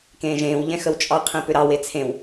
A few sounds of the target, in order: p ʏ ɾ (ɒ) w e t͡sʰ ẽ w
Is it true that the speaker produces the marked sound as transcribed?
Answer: no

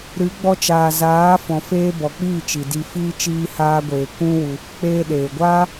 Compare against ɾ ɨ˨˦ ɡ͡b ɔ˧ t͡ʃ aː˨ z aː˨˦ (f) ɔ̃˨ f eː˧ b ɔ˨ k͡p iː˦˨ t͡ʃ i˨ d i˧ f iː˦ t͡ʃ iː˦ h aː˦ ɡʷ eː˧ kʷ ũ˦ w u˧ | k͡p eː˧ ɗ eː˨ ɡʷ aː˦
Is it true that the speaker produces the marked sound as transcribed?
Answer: yes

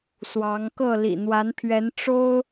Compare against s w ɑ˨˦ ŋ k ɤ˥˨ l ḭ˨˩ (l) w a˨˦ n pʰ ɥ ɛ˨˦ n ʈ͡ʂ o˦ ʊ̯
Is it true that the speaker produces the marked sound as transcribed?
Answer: no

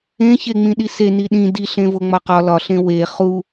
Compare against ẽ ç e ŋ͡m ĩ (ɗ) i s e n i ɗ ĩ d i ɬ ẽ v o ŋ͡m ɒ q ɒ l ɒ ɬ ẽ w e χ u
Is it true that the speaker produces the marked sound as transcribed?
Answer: yes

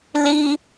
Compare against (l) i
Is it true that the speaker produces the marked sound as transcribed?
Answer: yes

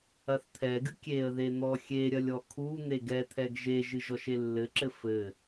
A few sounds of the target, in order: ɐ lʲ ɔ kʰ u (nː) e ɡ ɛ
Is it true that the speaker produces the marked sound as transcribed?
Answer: no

